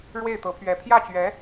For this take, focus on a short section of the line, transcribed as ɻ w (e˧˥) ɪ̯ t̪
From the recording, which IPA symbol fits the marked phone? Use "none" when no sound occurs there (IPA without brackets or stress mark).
e˥˩